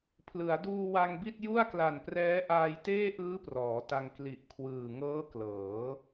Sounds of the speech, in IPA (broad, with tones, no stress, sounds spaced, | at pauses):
pʰ l ɯ˩˦ a̯ d uː˧ w a˧ ŋ b i˥˩ t̚ j u˥˩ a̯ k l a˨˩ n p r ɛː˦˥ ʔ aː˧ j t eː˥˩ ʔ ɯː˦˥ p r ɔː˩˦ t a˧ ŋ k l i˨˩ ʔ kʰ w ɯː˨˩ ŋ ɤː˦˥ k l ɤː˩˦